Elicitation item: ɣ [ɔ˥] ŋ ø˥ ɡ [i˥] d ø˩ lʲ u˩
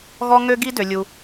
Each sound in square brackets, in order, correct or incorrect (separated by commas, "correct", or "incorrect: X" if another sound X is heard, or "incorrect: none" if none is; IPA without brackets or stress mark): correct, correct